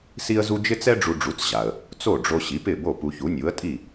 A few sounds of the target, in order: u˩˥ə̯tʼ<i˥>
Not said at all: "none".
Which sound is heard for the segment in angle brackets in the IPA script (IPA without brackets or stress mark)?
i˥˩